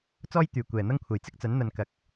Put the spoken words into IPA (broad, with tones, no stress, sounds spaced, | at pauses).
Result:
t͡s ɔː˥ j t̪ yː˨˩ kʷ ɛː˨˩ n̪ ɐ˥ ŋ kʷʰ ɐ˨˩ j t͡s ɪ˥ k̚ t͡s ɐ˨˥ n n̪ ɐ˨ n k ɐ˨˥ k̚